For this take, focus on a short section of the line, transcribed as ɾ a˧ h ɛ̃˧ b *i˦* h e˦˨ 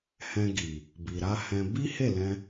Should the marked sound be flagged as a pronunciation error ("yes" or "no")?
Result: no